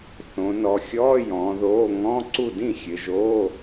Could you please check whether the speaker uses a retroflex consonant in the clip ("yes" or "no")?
no